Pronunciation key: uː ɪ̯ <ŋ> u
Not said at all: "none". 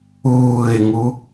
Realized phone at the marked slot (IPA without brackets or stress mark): ŋ